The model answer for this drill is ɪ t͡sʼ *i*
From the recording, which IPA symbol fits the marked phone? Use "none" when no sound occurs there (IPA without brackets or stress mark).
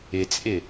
ɪ